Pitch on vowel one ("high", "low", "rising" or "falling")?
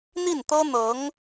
falling